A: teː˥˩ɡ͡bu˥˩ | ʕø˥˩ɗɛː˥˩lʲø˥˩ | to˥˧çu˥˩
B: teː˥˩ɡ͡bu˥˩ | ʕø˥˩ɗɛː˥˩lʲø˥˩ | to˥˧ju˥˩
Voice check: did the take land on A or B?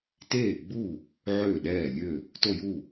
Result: B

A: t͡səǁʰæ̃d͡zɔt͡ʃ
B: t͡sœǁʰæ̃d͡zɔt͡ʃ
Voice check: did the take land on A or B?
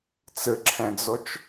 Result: A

